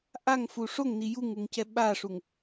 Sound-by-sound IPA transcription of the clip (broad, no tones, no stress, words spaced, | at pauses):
ʔaŋfu ʂoŋni juŋuŋcɛ ɓaʂuŋ